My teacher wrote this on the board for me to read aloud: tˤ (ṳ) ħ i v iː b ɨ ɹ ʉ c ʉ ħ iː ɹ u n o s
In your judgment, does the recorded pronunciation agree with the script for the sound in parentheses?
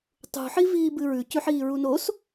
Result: yes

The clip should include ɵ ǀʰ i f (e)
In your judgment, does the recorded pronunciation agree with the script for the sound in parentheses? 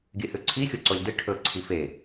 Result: yes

